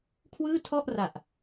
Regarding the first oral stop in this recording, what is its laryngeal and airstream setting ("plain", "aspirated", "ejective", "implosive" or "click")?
aspirated